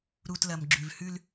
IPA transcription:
ɾ u˨ t l ɐ˨ m ɡ͡ǁ ʉ˨ v h ʉ˦ l

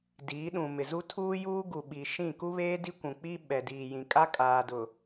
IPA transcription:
d iː˨˦ ɗ ũ˨ m ɪ˨ z u˦ tʰ uː˦ j uː˦ ɡ u˨ ɓ i˨ ʃ ĩ˦˨ k u˦ β eː˦ d i˦ kʷ ũ˨ k͡p i˦ ɓ ɛ˨ d iː˨ j ĩ˨ kʼ a˦ kʼ aː˨ d ʊ˨

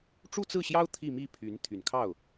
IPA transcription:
ʈ͡ʂ u˥˧ t͡s ɹ̩˥˩ ɕ j ɑ˥ ʊ̯ t̪ʰ i˥˧ m i˥˩ pʰ y˧˥ n t̪ʰ y˨˩ n kʰ ɑ˥˩ ʊ̯

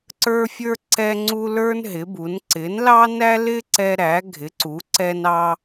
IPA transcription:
ǀ ə˞˥ fʲ ə˞˥ ǀ ɛ˥ ŋ͡ǀ u˥ l ə˞˥ n ɦ ɪ˨˥ b u˨˥ n ǀ ɪ˨˥ n l ɑ˥ n æ˥ l ɪ˥ ǀ ɛ˥ ɾ æ˨˥ ɡʱ ɪ˨˥ ǀ u˨˥ ǀ ɛ˥ n ɑ˥

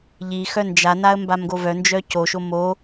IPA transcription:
ʎ i x œ n d͡ʒ a n a ə̯ m b a m ɡ o v œ n d͡ʒ œ c o ʃ o m o

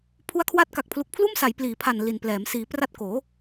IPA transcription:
pʰ u˦˥ a̯ kʰ w a˦˥ t̚ k a˨˩ k̚ pʰ l u˨˩ k̚ pʰ l uː˥˩ m s a˩˦ j p l iː˩˦ pʰ a˨˩ n l i˨˩ n p l ɛː˩˦ m s iː˩˦ p r a˦˥ t̚ k oː˩˦

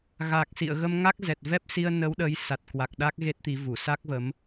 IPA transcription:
ɣ aː˨˩ k̚ s ḭ˧˨ ə̯ ɣ ə˧ m ŋ a˦˥ k̚ z ɛ˨˩ t̚ v ɛ˦˥ p̚ s i˧ ə̯ n ə˨˦ w ɗ ə˨˦ j s a˨˩ t̚ k w a˨˩ k̚ ɗ a˦˥ k̚ ɣ e˦˥ t̚ t̪ i˨˦ v u˧˩ s a˦˥ k̚ v ə˨˦ m

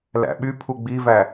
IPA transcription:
l æ̰ ɓ y pʰ u ɡ͡b i v æ

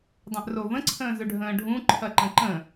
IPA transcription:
dˤ ɛ̃ ʔ r o v ə̃ ǀʰ ə̃ː z ɵ ɖʱ ə̃ː ɖʱ ũ ǃʰ ɐ ǃ ə̃ ǃ ə̃

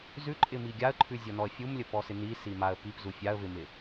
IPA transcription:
z ʉ ǃʼ ɪ m i ɡʲ a ə̯ ǃʰ ʉ zʲ ɔ n ɔ ə̯ fʲ u m lʲ ə p ɔ s ɪ n i s i m a ə̯ p i p z u fʲ a ə̯ v ɪ m ɪ

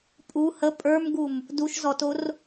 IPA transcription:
pʼ u h ə pʼ ə˞ m ɡ u m | d u ʃ z ɔ t o r

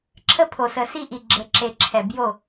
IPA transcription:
ǁʰ ə˦ pʰ o˨ s ə˨ s i˦ ʔ i˨ ɡ͡ǁ ə˨ ǁ e˨ ǁʰ ɛ˨ b j o˦˨

